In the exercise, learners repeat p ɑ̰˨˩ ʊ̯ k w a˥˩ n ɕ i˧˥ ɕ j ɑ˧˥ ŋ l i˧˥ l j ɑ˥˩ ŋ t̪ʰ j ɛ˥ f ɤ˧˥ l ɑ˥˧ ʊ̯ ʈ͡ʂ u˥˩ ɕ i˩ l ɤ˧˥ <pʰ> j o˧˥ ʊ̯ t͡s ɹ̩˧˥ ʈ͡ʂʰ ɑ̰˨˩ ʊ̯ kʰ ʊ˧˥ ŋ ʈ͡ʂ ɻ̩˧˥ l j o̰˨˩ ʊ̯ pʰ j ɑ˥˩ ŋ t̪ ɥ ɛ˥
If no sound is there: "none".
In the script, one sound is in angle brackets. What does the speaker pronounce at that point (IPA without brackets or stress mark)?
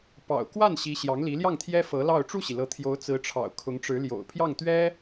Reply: t̪ʰ